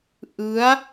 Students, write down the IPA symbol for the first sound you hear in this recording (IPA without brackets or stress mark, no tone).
ʔ